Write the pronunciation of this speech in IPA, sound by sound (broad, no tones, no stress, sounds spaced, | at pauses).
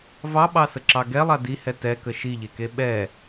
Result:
v ɑ ɓ ɑ s ə ǁ ɑ ɡ ɛ lˠ a d i h ɛ t ɛ k ə ʃ i ʎ e k e ɓ ɛ